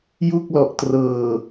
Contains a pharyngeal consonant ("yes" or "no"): no